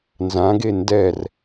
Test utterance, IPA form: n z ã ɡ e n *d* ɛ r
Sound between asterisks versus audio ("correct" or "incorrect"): correct